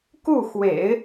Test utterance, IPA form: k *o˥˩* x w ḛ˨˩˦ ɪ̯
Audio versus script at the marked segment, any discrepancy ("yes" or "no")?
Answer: yes